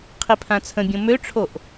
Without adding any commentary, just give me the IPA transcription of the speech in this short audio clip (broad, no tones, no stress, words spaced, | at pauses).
qʰipʰãt͡sʰə̃bʲõ møʈ͡ʂʰoʔ